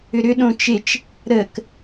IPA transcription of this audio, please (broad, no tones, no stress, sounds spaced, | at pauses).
ʏ ɾ ʏ ɗ õ t͡ʃ e t͡ʃ | ɾ ə k